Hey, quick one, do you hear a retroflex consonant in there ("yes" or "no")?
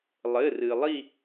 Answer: no